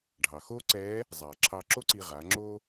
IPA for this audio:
ɖʱ ɑ˩ x oː˥ ǀ ɛː˧˥ | zˤ aː˩ ǁʰ ɑː˧ ǁ o˥ ǀ iː˧ ʁ aː˩˧ ŋ͡ǁ oː˥

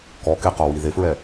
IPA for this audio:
k ɔ k e q ɔ w i ð e f ɹ ɛ

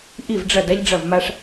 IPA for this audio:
ʔ i˥˩ v ɖ͡ʐ ɐ˥˩ d a˥ ʎ ɖ͡ʐ ɐ˥˩ v m a˥ ʂ

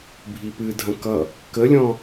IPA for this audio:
bʱ i p ɨ dʱ ɐ̃ k ʌ | k ə lʲ ɔ̃

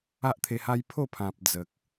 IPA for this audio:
a˦ ʔ t̪ʰ e˧ h a˦ j pʰ o˥˧ pʰ ã˨ p̚ d͡z ə˨ k̚

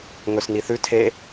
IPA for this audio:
ŋ ɵ s n i θ ʉ tʰ e

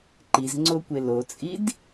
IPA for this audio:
ǃ i z ŋ͡ǀ o kʷ e l o t͡sʼ i d

